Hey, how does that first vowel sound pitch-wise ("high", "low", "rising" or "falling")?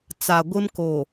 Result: low